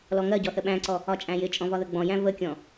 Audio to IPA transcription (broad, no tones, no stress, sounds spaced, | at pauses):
l ɔ ŋ ɜ ɟ ɔ θ ə ɓ æ̃ ǀ ɔ | ɒ t͡ʃʼ æ̃ j ɪ t͡ʃʼ ɔ̃ v ɒ ð ə ɡ͡b ɔ̃ j æ̃ v ə kʲ ɔ̃